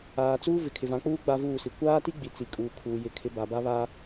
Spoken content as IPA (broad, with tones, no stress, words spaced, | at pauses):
aː˨t͡suː˦ vɪ˨kʰɪ˨vã˨˦k͡puː˦ ɡ͡ba˦vuː˦˨si˨ kʷaː˦ti˦ ɡ͡bi˨ t͡si˨kʼuː˨kʰuː˨ jɪ˨˦kʰɪ˨˦ ba˨ba˦βa˦